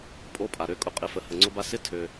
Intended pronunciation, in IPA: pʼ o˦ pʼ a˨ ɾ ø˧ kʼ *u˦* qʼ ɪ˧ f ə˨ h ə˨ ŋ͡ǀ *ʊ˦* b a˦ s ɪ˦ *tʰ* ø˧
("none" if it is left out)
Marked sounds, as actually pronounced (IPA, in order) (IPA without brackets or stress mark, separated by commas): ʊ˦, ʊ˦, tʰ